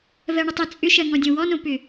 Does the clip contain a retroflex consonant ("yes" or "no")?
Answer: yes